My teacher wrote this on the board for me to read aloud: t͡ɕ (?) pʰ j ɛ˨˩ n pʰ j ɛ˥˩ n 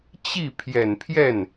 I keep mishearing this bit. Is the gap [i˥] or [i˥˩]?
i˥˩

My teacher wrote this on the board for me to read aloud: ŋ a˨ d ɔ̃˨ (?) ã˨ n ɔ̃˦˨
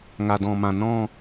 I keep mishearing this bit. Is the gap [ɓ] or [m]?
m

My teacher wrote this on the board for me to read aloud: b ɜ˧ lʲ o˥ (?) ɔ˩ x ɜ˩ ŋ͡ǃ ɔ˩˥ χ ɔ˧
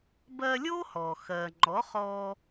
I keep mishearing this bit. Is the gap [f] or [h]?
h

